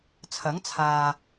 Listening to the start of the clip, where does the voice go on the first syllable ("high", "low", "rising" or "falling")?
rising